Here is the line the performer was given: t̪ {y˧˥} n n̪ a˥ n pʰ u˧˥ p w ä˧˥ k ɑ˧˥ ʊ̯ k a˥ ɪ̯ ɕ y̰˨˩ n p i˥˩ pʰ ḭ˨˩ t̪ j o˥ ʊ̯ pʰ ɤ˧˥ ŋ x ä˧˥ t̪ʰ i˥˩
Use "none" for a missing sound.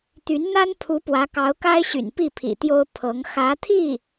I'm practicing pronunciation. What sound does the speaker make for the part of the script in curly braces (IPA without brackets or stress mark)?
y˧˥